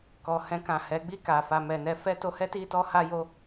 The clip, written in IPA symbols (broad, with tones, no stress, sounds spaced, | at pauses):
k ɔ˨ h ɛ̃˧ k ã˨ h ɛ˨˦ ɡ͡b i˦˨ k a˨ f a˨ m ɛ˨ n ɛ˧ f ɛ˦ t o˧ h ɛ˦ t i˦ t ɔ˦ h a˦ j o˦